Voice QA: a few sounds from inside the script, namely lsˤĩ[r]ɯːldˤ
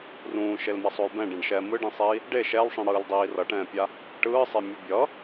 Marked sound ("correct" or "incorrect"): incorrect